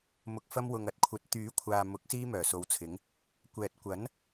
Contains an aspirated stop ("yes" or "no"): yes